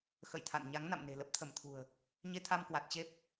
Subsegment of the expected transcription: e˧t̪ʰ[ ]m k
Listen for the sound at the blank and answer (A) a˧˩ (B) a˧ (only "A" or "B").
B